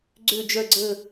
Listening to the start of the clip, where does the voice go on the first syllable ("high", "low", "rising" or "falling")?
falling